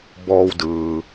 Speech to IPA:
b ɔː˧ w d ɯː˩

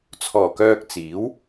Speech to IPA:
t͡sʰ ɔː˨˩ k œː˧ k̚ t͡s iː˨˥ w

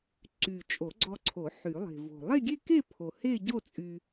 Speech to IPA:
ǀ y˨˩ t͡ʃʼ o˨˩˦ ɡ͡ǀ ɔ˧ ǀʰ o˨˩˦ ħ y˨˩˦ lˠ e̤˨˩ v o̤˨˩ lˠ e˥˧ ɡʲ e˥˧ k e˥˧ pʰ o˨˩ h e˥˧ ɟ o˥˧ t͡sʼ y˧

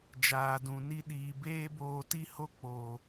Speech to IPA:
d͡ʒ aː˨ d ũ˨ n i˦ ɗ iː˧ b eː˦ b oː˧ t i˦ h o˦ k͡p o˨

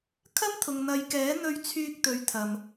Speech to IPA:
kʰ ɐ˥ m t̪ʰ ʊ˨ ŋ n̪ ɐ˨˧ j k ɛː˨˥ n̪ ɵ˧ ɥ t͡sʰ yː˧ k̚ t̪ ɵ˨˥ ɥ t̪ʰ ɐ˨ m

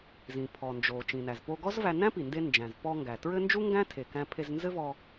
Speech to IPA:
z ĩ˩ pʰ ɔ˩ n d͡ʒ o˩ t͡ʃ ĩ˩ n æ˩ z p o˧ ɡ ɔ˥ z v æ˧ n æ̃˥ p i˩ n d e˧ n d͡ʒ æ̃˩ z p ɔ˧ ŋ ɡ æ˩ t ɹ ɘ˥ n d͡ʒ u˥ ŋ ɡ æ̃˥ tʰ e˩ k æ̃˧ pʰ e˧ z n z ɘ˥ v ɔ˧

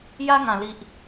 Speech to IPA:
j a˦ ŋ ã˨˩ l i˨ ʔ

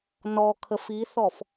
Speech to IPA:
n ɔ kʰ ə f i θ ɔ f

